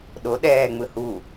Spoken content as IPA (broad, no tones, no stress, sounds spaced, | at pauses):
ɗ o ɗ ɛː ŋ͡m ɯ h u